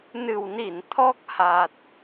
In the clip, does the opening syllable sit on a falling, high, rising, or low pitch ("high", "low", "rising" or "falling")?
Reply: low